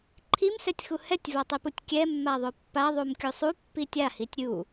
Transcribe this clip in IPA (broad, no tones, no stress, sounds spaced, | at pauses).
ǃʰ i m s ɛ tʲ x u h ɛ tʲ v a tˤ i p u tʲ kʲ ɛ mː a ðˤ o pː a ðˤ u m kʲ u sˤ u pː i tʲ a h i tʲ ɾʲ u